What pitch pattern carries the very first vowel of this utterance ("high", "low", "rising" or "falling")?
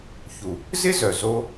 low